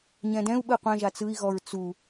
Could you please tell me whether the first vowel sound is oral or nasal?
nasal